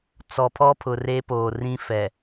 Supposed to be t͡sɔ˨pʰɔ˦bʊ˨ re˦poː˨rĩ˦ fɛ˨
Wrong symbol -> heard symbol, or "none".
b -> pʰ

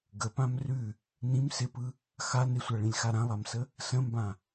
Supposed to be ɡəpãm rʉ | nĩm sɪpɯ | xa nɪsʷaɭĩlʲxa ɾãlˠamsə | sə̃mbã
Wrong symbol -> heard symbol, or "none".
none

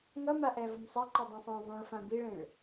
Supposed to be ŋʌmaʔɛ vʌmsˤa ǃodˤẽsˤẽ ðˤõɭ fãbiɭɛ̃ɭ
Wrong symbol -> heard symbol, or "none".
ɛ̃ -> ẽ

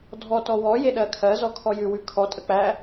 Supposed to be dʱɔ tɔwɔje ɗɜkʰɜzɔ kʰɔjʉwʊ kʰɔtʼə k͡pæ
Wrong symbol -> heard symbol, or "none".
ʊ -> ʉ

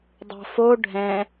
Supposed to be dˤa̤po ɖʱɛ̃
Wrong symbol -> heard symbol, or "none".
p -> f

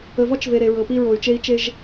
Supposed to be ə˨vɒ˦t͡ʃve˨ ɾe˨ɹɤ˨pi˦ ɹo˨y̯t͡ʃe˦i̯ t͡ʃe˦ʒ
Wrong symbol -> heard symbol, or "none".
none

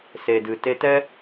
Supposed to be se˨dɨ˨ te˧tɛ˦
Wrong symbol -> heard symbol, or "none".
none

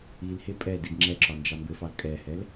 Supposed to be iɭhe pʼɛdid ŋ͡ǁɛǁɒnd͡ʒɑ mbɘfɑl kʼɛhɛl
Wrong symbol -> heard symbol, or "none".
ɭ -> l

